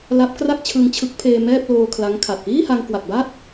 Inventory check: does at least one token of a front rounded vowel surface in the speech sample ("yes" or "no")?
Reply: no